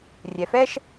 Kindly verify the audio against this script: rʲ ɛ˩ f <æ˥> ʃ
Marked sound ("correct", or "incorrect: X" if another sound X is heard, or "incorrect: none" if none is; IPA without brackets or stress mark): incorrect: ɛ˥